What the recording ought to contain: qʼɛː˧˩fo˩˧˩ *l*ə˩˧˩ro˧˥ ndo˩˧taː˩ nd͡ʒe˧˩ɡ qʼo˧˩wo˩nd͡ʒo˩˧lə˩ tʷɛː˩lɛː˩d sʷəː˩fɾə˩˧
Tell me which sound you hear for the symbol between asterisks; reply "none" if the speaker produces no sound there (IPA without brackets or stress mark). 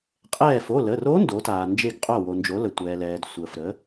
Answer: l